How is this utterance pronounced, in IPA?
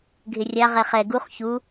ɡʱɪrʲa ʁɛχɛ ɡuχ çu

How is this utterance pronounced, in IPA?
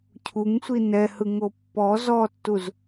cʰuŋsʷi nɛhɯŋo pːɔ zɔtːuz

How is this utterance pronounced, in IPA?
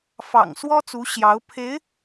fɑ̰˨˩ŋswɔ˥t͡su˧˥ ɕjɑ˧˥ʊ̯ pʰe˧˥ɪ̯

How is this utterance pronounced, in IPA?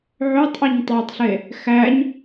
ʕøtˤʔøɲ tˤɑtˤɬe | xæɲ

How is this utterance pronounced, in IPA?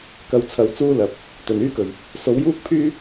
kɐ˧wt͡sʰɐ˧wt͡suː˥ lɐ˨˥p̚ | t̪ɵ˨˩nyː˥kɵ˨˩ɥ | so˨˥wjuː˥k̚pʰyː˥

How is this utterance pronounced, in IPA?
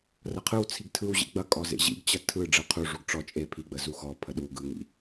rɐqʰɯwt͡sʰiɡ tʰɯw ʑḭɡ͡bɐkʼɔ zḛʑḭɡt͡ɕɐ tʰɯ ɖ͡ʐɯqʰuʐuɡ ʈ͡ʂɔ t͡ʃʼe pʰiɡ͡bə zuxɔpʰə ɗu ɡɯŋḭ

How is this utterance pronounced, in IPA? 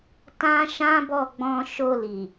tã˦ʃã˦bɔ˦˨ ɡ͡bɔ̃˧ ʃo˧li˨

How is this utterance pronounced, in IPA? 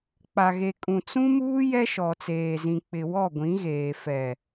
k͡pa˨ɣe˨ kʼũ˨t͡sũ˦muː˦ jɛ˦ʃɔ˨t͡seː˨zĩ˨ k͡pɪ˨ wɔ˦˨ɡʷĩ˨˦ɣeː˨ fɛ˨

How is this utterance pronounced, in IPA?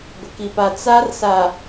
ɡʷɪ˨ki˨pa˨ t͡sa˦r sa˨

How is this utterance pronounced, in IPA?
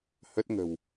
hə˦˥t̚ ŋə̤˨˩w

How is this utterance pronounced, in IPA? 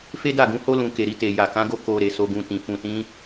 fe˦da˦˨ɡũ˨˦ho˦ lũ˧ke˨ɾi˧ te˨ ja˨kã˨˦ɡo˦˨ ko˨ ɾe˧ so˧ɡũ˧tĩ˨ fũ˨tĩ˨˦

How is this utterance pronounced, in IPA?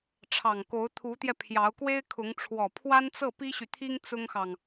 ʈ͡ʂʰɑ˨˩ŋko˧˥ʊ̯ t̪ʰu˧˥t̪jɛ˧ pʰjɑ˧˥ʊ̯kwe˥ɪ̯kʰʊ˧˥ŋ ʈ͡ʂʰwɔ˨˩pʰwa˥nt͡sɤ˥˩ pi˥ɕy˨t̪ʰi˥ŋ t͡sʊ˥ŋxɑ˨ŋ

